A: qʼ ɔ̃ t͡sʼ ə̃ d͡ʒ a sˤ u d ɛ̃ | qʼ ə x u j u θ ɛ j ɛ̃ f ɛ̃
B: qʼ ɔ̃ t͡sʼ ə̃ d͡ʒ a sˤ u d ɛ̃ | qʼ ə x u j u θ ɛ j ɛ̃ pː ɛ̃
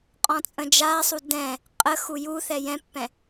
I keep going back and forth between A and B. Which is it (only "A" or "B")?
B